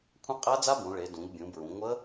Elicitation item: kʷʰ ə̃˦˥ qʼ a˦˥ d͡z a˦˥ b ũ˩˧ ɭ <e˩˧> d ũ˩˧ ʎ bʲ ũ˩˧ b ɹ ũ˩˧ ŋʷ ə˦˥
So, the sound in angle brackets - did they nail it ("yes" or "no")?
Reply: yes